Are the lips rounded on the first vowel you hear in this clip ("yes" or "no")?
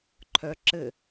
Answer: yes